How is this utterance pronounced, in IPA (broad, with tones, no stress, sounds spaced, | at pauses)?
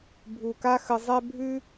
bʱ u˨˩ k a˥ x ə˧ zˤ ɛ˥ bʱ ʉ˥